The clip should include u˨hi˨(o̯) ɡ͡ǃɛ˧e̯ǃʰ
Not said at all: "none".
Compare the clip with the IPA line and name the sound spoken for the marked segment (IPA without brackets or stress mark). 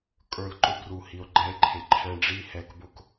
o̯